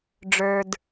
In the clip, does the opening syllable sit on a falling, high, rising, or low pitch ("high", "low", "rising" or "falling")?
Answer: low